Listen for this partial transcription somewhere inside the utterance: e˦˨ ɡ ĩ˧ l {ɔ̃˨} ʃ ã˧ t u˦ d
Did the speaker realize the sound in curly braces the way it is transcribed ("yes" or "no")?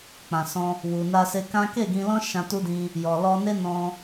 no